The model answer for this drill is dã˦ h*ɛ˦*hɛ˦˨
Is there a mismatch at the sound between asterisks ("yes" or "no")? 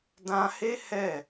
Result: yes